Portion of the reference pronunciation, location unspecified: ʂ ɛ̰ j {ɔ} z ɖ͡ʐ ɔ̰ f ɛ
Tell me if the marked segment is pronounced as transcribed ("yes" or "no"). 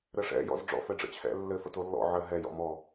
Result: no